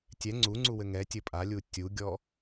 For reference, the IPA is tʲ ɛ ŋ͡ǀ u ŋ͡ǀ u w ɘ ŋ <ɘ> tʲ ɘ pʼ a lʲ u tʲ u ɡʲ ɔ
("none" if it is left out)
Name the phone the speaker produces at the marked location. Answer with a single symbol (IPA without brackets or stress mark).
ɛ